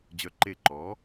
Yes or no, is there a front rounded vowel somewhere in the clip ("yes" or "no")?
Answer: yes